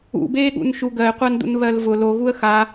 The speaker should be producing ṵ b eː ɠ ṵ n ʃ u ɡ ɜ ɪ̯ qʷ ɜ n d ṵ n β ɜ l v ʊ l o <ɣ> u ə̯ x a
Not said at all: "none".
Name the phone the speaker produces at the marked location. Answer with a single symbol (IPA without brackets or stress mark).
ɣ